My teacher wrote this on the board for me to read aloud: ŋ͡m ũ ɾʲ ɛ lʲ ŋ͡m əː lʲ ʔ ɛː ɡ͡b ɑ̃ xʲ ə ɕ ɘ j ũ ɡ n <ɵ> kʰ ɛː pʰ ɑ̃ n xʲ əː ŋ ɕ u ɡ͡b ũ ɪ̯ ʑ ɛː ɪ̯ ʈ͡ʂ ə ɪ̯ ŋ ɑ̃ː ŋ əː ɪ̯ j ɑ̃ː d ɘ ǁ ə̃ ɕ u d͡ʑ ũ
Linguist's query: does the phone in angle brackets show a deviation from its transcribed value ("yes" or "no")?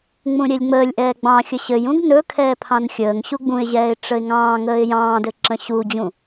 no